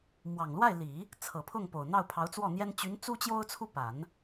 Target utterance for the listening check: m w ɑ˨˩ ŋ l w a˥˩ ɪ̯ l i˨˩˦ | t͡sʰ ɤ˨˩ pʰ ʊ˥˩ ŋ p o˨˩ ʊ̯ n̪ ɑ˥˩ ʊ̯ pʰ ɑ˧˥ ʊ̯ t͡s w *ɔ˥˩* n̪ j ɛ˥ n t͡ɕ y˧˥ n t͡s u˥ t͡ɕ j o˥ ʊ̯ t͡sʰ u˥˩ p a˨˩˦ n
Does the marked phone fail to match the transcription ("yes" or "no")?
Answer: no